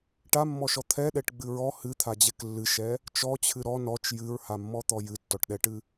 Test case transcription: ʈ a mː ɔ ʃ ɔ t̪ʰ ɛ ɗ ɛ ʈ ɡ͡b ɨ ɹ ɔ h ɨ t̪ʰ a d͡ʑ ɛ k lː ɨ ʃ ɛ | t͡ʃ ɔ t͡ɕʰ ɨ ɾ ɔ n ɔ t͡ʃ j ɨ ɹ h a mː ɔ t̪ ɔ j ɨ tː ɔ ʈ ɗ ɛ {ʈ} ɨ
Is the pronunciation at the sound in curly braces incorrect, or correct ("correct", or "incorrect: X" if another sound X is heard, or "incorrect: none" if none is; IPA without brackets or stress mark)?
correct